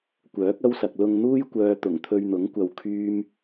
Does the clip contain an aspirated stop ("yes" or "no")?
yes